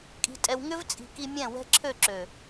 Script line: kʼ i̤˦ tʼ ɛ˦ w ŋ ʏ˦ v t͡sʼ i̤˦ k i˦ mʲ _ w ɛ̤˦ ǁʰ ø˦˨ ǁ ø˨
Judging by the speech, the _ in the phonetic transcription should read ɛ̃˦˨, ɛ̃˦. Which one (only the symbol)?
ɛ̃˦˨